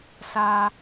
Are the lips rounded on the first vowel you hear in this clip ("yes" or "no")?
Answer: no